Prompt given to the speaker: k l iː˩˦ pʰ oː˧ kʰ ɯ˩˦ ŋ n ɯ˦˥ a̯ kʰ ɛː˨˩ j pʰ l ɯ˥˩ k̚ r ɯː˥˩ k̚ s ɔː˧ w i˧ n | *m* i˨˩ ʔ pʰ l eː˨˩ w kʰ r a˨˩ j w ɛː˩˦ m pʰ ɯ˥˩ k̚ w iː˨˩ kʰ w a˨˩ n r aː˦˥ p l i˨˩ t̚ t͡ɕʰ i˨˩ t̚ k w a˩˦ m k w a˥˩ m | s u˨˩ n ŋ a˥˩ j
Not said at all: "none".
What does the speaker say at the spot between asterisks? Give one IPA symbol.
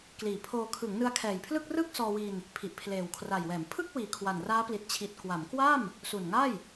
pʰ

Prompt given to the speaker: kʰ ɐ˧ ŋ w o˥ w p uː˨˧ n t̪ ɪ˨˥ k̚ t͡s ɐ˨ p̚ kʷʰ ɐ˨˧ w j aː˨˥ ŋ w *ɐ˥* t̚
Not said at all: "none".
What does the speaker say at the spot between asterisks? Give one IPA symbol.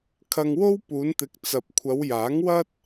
ɐ˥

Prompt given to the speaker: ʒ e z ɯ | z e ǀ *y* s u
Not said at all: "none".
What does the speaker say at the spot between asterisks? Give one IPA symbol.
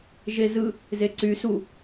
y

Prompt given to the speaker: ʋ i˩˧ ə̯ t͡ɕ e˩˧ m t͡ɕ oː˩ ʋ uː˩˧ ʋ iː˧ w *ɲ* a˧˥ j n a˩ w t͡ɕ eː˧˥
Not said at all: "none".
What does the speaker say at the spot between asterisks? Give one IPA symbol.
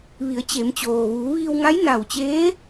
ŋ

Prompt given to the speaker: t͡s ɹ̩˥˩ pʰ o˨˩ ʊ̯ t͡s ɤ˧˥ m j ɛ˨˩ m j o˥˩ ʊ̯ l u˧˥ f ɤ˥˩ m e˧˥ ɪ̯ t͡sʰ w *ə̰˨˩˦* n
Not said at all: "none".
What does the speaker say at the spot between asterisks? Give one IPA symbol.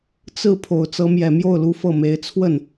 ə˥˩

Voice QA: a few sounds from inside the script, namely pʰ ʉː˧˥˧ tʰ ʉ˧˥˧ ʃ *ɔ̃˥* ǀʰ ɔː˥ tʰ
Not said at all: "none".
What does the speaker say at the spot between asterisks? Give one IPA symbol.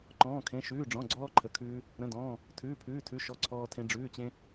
ɔ˥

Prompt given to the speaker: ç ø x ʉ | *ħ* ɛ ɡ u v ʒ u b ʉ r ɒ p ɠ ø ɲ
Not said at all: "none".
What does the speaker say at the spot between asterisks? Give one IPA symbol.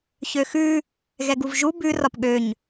ɣ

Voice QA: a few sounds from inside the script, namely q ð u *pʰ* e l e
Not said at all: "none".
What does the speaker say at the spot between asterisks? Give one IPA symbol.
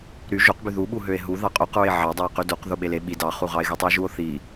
ɓ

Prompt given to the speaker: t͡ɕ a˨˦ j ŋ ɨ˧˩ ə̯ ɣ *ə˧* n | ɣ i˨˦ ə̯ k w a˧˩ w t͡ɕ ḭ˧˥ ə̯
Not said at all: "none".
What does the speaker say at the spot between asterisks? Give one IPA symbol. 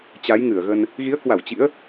ə˧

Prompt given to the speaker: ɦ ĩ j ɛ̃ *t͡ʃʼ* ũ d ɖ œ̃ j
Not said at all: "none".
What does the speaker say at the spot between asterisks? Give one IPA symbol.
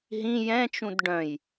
t͡ʃ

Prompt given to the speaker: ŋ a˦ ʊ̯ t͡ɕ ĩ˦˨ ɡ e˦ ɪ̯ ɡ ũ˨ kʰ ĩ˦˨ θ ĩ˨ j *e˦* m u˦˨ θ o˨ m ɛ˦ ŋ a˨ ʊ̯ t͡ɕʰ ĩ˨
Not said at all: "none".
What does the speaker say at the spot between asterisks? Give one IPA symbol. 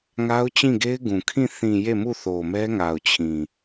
e˦˨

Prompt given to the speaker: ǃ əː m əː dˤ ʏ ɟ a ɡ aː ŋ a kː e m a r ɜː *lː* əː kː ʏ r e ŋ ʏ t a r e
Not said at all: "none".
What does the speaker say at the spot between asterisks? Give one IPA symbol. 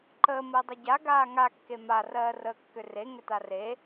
r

